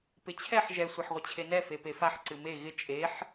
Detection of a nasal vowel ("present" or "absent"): absent